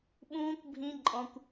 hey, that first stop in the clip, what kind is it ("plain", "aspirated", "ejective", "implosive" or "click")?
implosive